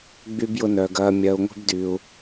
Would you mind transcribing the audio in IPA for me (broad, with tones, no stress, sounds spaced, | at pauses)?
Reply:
ɡ͡b y˦ b j ʊ˦ n œː˧ ɡ ɐː˧ mʲ ɐː˧ u̯ ŋʷ e̤˦ b d yː˧ u̯